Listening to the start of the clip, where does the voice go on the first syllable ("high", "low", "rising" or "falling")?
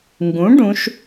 rising